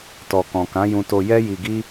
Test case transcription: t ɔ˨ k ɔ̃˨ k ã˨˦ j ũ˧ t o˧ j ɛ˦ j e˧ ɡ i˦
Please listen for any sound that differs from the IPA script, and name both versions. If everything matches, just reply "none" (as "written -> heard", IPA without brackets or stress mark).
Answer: e˧ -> i˧